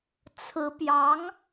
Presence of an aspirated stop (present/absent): present